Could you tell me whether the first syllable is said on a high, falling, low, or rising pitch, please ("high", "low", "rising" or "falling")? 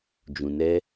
low